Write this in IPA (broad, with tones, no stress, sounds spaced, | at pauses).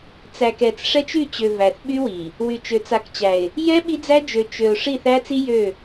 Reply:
t͡s æ˨ k ɛ˨ t͡s ʂ ɛ˦ t͡ʃ y˦˨ t͡ɕ ø˨ v æ˨ θ ɓ y˦ w i˨ | w y˨ t͡ʃ ø˨ t͡s a˨ k t͡ɕ æ˨ ɪ̯ | j ɛ˦ ɓ i˦ d͡z æ˦ d͡ʒ ø˨ t͡ʃ ø˨ ʊ̯ ʂ i˦˨ θ æ˦ t͡s i˦ j ø˦˨